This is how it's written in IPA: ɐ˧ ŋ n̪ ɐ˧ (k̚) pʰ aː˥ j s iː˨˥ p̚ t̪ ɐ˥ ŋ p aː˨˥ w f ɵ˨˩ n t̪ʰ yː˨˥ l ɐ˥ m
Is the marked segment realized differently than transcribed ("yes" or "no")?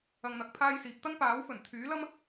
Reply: no